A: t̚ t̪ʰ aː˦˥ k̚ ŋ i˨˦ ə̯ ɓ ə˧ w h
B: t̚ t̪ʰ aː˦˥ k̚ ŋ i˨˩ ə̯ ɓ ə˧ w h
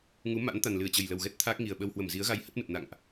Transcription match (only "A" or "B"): B